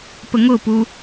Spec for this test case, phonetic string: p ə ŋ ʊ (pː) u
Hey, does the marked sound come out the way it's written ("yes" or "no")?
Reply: no